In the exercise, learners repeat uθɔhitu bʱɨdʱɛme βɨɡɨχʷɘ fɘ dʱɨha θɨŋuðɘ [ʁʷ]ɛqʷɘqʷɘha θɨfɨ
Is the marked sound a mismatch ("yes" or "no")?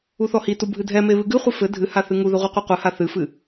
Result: no